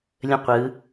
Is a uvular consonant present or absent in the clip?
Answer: present